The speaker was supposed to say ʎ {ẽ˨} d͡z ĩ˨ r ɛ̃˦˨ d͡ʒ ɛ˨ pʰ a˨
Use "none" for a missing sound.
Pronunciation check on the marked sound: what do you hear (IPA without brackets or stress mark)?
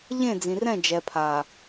ẽ˦˨